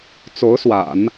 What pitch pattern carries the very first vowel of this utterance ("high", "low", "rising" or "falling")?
rising